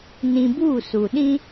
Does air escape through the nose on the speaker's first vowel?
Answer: yes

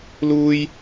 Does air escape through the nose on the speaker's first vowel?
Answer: no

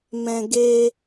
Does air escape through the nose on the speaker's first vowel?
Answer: yes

